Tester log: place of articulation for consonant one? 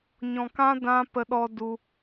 palatal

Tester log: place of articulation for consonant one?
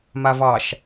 labial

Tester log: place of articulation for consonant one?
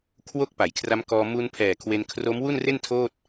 velar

